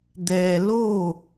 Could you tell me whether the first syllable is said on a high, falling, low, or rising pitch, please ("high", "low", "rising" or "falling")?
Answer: low